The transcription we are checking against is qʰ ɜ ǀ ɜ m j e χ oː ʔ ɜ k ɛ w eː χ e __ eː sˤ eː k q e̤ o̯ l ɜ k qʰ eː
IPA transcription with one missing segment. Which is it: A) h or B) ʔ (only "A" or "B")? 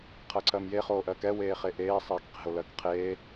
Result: B